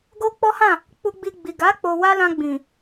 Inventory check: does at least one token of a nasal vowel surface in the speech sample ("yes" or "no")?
yes